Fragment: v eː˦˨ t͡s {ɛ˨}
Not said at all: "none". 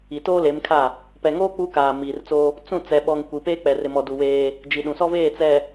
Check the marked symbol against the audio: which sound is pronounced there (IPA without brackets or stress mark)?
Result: ɛ˨